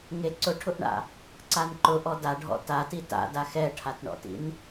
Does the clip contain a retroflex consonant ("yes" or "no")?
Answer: yes